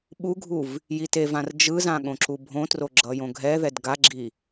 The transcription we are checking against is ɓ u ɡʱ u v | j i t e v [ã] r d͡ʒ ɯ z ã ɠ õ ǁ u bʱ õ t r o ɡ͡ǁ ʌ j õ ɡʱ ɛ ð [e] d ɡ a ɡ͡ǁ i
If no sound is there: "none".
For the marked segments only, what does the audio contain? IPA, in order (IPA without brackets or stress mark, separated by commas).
ã, ɛ